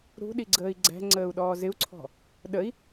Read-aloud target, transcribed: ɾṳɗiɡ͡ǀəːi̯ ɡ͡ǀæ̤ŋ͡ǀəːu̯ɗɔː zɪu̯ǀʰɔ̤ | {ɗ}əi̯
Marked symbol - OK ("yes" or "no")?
yes